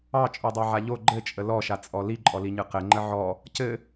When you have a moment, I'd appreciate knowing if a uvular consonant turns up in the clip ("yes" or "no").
yes